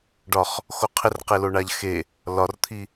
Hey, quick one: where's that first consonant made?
retroflex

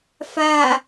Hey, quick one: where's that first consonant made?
lips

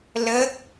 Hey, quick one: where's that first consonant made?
tongue tip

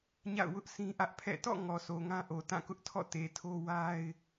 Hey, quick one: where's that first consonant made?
palate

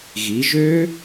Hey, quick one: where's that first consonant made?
velum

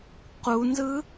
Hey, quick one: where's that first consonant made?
uvula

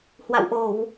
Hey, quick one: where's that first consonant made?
throat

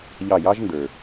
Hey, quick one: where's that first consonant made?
palate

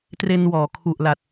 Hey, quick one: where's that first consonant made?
tongue tip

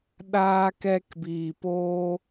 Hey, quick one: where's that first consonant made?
tongue tip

